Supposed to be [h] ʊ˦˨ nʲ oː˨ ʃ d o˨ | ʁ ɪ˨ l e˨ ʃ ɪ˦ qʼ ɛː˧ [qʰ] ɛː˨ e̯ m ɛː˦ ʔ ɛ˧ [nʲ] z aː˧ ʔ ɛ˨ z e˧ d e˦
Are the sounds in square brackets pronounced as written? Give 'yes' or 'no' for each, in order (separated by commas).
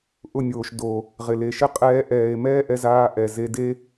no, no, no